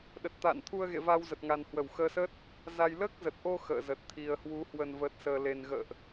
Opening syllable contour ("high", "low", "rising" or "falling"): low